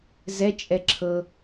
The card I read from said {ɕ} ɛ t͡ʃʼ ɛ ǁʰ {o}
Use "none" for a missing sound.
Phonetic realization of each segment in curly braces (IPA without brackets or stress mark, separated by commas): z, ɤ